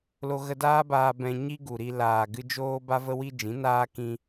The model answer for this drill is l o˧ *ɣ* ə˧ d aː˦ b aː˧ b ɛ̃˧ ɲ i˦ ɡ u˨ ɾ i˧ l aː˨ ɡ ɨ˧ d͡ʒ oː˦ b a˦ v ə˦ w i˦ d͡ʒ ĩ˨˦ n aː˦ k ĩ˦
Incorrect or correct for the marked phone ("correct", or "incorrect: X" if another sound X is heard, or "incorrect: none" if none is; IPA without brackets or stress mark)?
correct